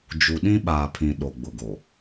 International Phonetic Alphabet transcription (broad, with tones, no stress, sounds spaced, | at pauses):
d͡ʒ u˨ ɗ ĩ˦ ɓ aː˨ pʰ ĩ˨ ɗ o˨ ɡ͡b ʊ˨ ɡ o˨